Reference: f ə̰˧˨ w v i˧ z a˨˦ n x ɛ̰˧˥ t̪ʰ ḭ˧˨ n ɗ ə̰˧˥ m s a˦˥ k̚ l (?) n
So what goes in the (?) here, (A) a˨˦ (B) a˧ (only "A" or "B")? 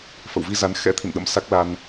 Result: B